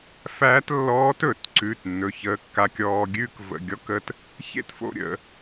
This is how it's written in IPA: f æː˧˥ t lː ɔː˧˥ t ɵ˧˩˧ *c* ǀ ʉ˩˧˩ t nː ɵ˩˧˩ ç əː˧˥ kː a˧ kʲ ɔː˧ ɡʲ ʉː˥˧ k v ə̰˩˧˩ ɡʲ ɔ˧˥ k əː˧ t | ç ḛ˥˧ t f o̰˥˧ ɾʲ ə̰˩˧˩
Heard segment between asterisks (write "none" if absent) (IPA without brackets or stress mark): t